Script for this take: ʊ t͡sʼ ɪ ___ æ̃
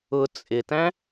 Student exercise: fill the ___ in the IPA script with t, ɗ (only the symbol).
t